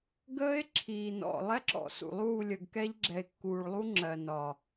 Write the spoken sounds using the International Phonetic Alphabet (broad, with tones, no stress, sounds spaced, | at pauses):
ɡ əː˦ e̯ ǁʰ iː˨ n ɔ̰˨ lˠ ɛ˦ ǁ ɔ̰˨ s ṵ˨ lˠ uː˦˨ lʲ ə˨ ɡ k ɛ˦ ʎ ɡ͡ǁ ɛ˨ e̯ kː uː˨ ɭ lˠ u˦ ŋ͡ǁ ɜ˨ n ɒ˨